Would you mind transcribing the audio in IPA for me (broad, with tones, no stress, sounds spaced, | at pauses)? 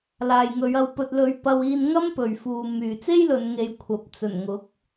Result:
l aː˨ j ŋ ɵ˨˧ ɥ ɐ˧ w p ɵ˧ t̚ l ɵ˧ ɥ p ɐ˧ w iː˧ n ŋ ɐ˥ m p ɵ˨ ɥ f uː˨ m yː˨ t͡s e˥ j l ɵ˨˧ n ŋ e˨˧ j kʷʰ ɐ˨˥ p̚ t͡s ɵ˨˩ n ŋ ʊ˨˥ k̚